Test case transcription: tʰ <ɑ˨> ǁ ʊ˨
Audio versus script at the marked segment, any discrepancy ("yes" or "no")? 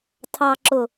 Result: no